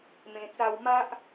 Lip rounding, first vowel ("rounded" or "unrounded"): unrounded